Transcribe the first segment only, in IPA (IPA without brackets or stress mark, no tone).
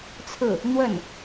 t͡sʰ